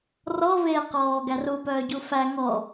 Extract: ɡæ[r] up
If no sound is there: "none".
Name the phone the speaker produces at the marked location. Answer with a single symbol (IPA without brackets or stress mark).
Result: r